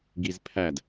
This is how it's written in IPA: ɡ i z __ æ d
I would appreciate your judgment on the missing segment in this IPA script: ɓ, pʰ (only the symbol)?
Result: pʰ